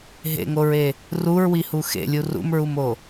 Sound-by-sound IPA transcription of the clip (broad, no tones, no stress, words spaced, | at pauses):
ɦḛŋoɹe | ruɹwihu xḛlʲu rṵmɹumo